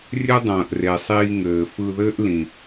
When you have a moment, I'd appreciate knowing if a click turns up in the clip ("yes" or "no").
no